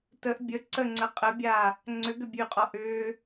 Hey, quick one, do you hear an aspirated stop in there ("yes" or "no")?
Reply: no